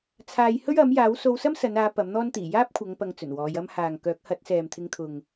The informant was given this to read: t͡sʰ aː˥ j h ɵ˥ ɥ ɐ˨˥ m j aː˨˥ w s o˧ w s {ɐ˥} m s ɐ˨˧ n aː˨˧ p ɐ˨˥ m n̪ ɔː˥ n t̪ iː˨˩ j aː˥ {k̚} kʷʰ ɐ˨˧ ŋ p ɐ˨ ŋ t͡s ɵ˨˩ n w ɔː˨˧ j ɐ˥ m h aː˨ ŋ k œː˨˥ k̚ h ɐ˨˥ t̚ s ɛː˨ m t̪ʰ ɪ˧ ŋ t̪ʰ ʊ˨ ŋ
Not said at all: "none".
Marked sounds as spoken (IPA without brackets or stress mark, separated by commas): ɐ˥, p̚